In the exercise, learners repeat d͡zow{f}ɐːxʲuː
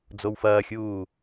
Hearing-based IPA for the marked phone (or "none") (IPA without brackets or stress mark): f